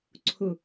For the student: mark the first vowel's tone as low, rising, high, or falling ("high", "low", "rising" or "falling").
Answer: low